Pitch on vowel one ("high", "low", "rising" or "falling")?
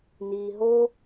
low